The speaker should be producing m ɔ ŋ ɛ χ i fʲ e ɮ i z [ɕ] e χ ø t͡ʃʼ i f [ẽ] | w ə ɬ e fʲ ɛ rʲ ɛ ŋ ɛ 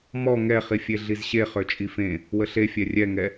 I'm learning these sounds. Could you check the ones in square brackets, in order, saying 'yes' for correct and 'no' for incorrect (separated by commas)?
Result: yes, yes